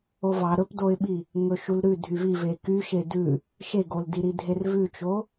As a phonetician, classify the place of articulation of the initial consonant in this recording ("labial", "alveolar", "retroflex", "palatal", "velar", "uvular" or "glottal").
labial